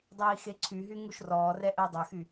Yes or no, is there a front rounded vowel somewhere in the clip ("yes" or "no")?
yes